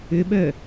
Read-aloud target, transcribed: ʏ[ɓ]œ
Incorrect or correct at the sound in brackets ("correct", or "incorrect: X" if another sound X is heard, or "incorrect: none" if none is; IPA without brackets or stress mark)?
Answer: correct